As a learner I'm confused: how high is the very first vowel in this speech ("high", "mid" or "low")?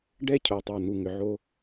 mid